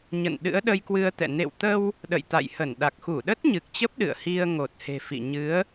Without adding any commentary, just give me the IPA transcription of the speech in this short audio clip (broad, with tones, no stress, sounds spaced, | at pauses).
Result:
ɲ ə̰˧˨ n ɗ ɨ̰˧˥ ə̯ ɗ ə˧ j k w ɨ˧ ə̯ t̪ ɛ̰˧˨ n ḛ˧˨ w t̪ ə˧ w | ɗ ə̰˧˨ j t̪ a̰˧˨ j h ə˧˩ n ɗ a˨˩ k̚ x u˧˩ ɗ ə˦˥ t̚ ɲ ɨ˨˩ k̚ t͡ɕ ə˦˥ p̚ ɗ ɨ̰˧˨ ə̯ h i˧ ə̯ ŋ o˨˩ t̚ h e̤˨˩ f ḭ˧˨ ɲ ɨ˨˦ ə̯